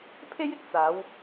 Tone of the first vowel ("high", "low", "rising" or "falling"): high